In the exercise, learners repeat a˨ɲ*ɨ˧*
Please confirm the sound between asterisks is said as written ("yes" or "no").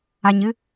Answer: yes